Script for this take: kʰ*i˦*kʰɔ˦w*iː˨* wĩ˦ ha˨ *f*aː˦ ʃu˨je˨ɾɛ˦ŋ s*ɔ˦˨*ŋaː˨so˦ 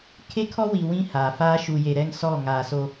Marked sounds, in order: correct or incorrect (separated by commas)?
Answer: incorrect, incorrect, correct, correct